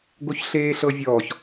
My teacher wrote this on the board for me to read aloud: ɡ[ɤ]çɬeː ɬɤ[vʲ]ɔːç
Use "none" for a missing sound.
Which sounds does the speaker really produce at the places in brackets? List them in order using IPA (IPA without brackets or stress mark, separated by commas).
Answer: o, vʲ